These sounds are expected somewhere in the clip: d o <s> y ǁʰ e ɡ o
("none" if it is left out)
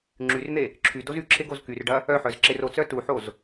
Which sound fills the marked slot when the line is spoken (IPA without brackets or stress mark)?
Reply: z